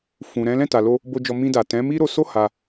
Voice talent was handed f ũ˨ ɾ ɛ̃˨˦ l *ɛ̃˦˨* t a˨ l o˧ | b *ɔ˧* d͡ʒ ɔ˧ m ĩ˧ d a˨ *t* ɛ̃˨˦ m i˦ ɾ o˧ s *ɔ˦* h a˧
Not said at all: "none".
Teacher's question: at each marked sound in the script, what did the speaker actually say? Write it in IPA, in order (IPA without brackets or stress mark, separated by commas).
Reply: ɛ̃˦˨, o˧, t, o˦